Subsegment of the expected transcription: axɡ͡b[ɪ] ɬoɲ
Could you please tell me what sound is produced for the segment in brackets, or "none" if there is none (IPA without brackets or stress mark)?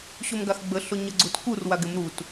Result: ə